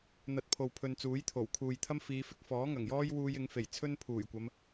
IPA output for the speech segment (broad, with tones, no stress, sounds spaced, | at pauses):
n̪ ɐ˧ t̚ pʰ o˨ w pʰ ɵ˧ n t͡s uː˨˥ j t̪ʰ o˨˩ w kʰ uː˨ j t̪ʰ ɐ˥ m f iː˨˧ f ɪ˧ k̚ f ɔː˨˥ ŋ ɐ˨˩ ŋ j ɔː˥ j w uː˧ j ɪ˨˧ ŋ f e˨˩ j t͡sʰ ɵ˥ n pʰ uː˨˩ j kʷ ɐ˨˧ m